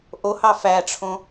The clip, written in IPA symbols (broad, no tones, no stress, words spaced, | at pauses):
ʔohɑ fæʈ͡ʂʰõ